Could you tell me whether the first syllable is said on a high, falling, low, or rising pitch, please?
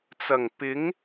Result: low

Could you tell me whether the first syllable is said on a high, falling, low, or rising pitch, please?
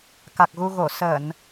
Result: low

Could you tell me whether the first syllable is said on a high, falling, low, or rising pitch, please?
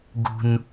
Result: high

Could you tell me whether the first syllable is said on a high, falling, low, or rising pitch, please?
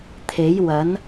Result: rising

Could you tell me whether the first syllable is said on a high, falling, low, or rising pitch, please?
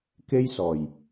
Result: high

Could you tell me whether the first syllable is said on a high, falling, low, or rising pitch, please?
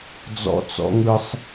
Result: high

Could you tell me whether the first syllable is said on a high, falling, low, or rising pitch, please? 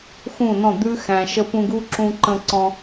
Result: falling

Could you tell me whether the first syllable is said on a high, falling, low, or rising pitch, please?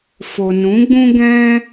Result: low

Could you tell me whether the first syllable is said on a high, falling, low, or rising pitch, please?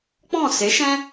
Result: falling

